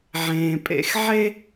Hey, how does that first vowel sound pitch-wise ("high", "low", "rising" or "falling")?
low